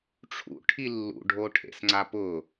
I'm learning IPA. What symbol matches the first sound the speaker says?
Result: ʈ͡ʂʰ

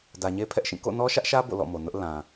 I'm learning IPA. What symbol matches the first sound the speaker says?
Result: d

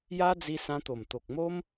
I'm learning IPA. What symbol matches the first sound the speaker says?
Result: j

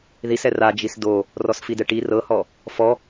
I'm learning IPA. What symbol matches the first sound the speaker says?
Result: ð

